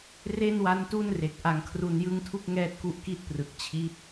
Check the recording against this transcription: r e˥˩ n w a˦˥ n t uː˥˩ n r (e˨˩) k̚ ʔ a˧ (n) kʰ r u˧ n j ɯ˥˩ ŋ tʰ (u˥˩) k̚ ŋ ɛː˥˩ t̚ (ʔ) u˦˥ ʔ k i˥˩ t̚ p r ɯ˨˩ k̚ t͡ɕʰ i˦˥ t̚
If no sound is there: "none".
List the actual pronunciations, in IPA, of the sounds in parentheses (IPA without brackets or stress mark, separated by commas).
e˨˩, ŋ, u˥˩, k